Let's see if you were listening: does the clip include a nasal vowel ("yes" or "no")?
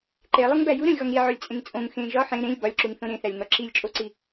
yes